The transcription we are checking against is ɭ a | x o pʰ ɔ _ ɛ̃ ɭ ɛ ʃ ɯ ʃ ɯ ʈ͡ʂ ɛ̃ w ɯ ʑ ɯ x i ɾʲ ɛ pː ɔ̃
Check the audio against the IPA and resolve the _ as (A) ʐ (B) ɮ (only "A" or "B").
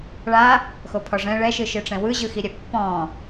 A